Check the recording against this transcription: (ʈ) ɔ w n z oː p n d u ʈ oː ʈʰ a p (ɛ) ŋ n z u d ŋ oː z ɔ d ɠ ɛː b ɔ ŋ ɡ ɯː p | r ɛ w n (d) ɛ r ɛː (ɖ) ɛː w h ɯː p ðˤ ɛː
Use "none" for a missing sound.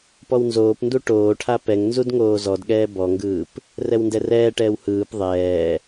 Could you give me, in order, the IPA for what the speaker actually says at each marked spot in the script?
p, ɛ, d, ʈ

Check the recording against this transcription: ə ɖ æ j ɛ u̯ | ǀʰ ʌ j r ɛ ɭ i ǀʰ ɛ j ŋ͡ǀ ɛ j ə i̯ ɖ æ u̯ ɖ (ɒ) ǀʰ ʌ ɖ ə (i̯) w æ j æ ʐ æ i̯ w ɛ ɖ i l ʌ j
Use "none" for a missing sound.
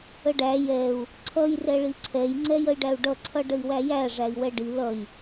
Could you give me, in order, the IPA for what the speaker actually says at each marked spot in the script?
ʌ, i̯

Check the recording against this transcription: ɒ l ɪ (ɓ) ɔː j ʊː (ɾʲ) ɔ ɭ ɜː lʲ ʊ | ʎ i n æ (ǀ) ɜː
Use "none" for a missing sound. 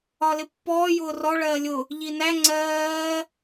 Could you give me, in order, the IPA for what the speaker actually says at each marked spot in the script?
pː, r, ŋ͡ǀ

